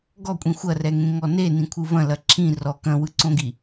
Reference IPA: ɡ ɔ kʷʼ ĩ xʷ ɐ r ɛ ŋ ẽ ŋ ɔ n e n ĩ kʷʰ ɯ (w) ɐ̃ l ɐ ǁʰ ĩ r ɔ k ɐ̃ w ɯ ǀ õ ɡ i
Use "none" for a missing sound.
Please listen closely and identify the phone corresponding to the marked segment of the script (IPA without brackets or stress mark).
v